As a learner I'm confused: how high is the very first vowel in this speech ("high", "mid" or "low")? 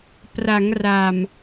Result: low